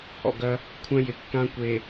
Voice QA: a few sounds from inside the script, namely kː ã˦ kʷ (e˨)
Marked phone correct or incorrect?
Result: correct